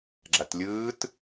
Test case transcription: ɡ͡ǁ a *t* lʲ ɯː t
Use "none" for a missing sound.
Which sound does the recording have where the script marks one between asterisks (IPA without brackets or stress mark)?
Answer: t